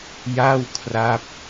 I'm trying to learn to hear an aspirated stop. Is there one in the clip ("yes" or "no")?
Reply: yes